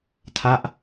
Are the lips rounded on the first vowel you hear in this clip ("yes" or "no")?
no